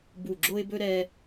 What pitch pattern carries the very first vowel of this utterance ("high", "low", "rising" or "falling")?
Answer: low